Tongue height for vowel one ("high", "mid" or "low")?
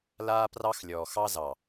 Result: low